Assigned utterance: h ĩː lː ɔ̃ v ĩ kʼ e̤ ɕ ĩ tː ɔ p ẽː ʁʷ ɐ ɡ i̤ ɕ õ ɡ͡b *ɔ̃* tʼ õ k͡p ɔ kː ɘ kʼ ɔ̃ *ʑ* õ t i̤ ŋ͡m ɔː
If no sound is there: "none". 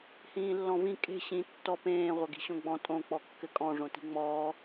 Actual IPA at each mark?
ɔ̃, ʐ

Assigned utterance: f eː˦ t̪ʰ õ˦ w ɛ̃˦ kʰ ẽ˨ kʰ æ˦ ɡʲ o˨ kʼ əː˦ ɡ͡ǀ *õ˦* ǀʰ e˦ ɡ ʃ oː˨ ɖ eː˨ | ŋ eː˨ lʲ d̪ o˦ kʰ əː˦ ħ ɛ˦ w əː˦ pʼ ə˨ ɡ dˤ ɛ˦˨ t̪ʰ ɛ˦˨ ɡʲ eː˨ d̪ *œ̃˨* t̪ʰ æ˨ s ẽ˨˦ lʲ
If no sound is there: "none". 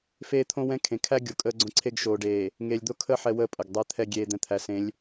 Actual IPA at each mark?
õ˦, ɛ̃˨

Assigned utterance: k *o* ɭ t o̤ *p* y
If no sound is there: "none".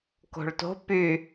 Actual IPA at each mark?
o̤, p

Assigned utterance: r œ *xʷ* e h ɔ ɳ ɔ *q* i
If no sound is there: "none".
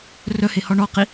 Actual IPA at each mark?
h, q

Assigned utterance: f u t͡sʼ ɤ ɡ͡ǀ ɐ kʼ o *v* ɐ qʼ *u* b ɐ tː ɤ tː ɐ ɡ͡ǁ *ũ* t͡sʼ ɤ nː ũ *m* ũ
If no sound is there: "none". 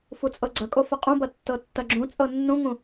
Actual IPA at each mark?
f, ũ, ũ, ŋ

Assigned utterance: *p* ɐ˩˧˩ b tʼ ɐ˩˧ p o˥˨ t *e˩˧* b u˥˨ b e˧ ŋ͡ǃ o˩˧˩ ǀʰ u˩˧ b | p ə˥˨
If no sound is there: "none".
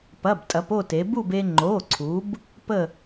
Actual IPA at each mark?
p, e˩˧

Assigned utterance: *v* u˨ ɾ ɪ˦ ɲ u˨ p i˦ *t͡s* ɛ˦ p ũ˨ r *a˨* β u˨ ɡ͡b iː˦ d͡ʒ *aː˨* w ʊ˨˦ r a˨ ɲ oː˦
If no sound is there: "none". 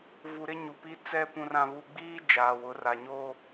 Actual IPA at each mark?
v, t͡s, ã˨, aː˨

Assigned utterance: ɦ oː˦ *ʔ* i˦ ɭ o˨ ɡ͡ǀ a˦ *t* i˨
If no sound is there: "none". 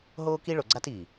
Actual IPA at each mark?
k, t

